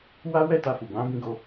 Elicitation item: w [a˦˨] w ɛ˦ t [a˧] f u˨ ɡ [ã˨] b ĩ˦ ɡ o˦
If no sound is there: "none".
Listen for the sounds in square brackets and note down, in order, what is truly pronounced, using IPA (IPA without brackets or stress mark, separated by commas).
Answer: a˦, a˧, ã˨˦